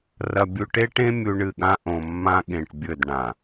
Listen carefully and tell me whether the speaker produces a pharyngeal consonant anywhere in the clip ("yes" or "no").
no